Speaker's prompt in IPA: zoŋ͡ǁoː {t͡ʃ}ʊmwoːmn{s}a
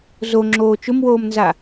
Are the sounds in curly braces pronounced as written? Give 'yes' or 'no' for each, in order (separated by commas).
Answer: yes, no